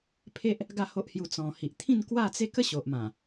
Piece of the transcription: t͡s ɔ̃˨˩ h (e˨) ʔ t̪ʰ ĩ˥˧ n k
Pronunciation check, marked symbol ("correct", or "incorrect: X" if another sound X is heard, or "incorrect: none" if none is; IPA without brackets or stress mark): incorrect: i˨